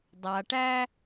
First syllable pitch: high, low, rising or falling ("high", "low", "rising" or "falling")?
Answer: low